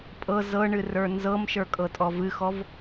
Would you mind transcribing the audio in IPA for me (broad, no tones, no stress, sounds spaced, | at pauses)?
pʼ ɤ z ɤ ɳ ɨ r ə˞ n z ɤ m ʃ ə˞ kʼ ɤ tʼ ɔ v ɨ x ɔ v